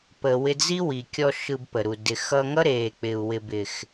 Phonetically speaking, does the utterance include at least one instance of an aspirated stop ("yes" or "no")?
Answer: no